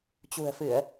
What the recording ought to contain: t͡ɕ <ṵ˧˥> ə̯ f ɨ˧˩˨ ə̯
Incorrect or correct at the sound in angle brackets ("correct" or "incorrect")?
incorrect